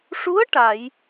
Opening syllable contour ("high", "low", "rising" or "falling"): rising